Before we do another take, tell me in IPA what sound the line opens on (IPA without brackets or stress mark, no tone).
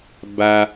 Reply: b